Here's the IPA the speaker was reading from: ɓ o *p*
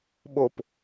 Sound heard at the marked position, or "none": p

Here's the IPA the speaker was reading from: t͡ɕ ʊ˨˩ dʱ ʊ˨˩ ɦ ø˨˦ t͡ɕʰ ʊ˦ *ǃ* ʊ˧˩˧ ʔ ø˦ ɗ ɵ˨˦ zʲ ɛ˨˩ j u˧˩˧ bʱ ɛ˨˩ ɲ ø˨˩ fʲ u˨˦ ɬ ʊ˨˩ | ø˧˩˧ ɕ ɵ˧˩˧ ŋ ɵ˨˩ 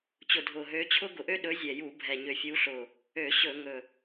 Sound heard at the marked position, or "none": ɡ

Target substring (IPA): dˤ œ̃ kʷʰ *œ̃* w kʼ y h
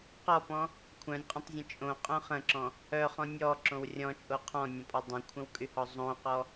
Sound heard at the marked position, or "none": ə̃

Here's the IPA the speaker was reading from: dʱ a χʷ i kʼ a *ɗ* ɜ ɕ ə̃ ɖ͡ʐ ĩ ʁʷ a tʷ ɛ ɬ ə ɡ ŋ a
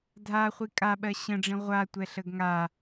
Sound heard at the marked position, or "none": ɓ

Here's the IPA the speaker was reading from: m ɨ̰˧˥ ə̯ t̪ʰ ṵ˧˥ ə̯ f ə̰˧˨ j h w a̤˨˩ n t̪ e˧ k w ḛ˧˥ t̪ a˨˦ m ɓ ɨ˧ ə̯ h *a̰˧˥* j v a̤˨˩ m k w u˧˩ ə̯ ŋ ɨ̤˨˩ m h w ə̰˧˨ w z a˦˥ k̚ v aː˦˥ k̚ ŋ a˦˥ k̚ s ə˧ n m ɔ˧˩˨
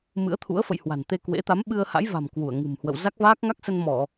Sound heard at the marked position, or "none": a̰˧˥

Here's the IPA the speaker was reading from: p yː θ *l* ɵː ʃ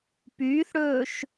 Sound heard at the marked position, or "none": ɽ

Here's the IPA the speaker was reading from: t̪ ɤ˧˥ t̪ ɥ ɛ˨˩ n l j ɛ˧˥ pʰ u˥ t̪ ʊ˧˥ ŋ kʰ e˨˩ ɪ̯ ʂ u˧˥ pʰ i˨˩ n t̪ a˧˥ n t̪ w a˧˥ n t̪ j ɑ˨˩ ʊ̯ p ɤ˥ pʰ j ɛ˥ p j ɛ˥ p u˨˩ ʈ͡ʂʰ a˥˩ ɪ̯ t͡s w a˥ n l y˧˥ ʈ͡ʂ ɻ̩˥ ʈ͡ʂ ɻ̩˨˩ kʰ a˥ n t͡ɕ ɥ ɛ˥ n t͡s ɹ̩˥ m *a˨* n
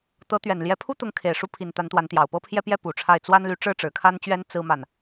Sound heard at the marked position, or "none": a˨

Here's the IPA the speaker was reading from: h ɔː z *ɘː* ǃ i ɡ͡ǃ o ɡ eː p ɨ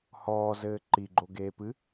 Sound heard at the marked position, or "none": ɘː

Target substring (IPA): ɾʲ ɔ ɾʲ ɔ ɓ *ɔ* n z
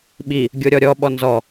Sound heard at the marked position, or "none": ɔ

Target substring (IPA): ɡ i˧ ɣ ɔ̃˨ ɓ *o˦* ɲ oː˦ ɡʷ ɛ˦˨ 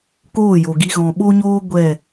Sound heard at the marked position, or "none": o˦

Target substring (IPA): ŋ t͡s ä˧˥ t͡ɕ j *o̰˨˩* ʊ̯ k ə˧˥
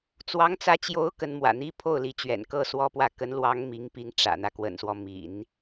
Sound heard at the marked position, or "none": o˧˥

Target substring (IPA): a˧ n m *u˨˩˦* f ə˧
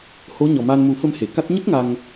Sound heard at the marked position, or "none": u˨˩˦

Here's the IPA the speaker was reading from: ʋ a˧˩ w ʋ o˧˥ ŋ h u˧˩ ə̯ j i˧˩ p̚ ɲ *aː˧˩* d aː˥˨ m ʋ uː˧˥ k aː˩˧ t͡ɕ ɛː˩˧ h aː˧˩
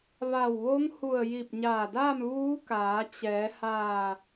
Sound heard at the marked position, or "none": aː˧˩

